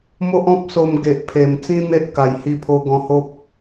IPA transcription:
m o˦ ʔ ɔ̃˦ p̚ s o˧ m ɡ e˨ ʔ pʰ e˨˩ m t͡s ĩ˦ n̪ e˦ ʔ k a˨˩ j h i˧ pʰ o˧ ɡ ɔ̃˧ h o˦ p̚

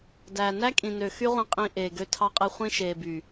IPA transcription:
d æː˨ n æ˦ kʼ ĩ˨ n ø˨ x y˦ ʁʷ ĩ˧ qʼ ĩ˨ ʔ eː˨ ɡ ø˧ tʰ ɑ˧ qʼ e˧ χʷ ĩ˧ ʃ eː˨ b y˨

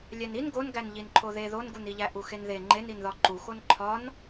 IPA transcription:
lʲ æ n i n ɡ o n ɡ æ n ʎ i n ǃʰ o ð e ð o n ɡ u n i ʎ æ ʔ u x e n ð e ŋ͡ǃ e n i n ð ɒ ǃ u x o n ǃʰ ɒ n

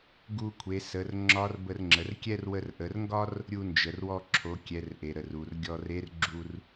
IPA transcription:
ɡ u˧ kʷʰ e˩˧ s ə˩˧ r ŋ͡ǁ ɒ˧˥ r b ə˧ r ŋ͡ǁ ə˩˧ r kʲ ɛ˥ r w ə˧ r ʔ ə˩˧ r ŋ ɡ ɒ˥ r | ɾʲ u˧ n d͡ʒ ə˩ r w ɔ˧ ǁʰ o˩˧ kʲ ɛ˩˧ r ʔ e˩ ɾ ə˩ r u˩ r ɡʲ ɔ˧ r e˧˥ r ɡ͡ǁ u˧ r

